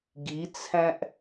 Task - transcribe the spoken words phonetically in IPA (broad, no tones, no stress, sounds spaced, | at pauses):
ɡ i t͡sʰ æ̃ ʔ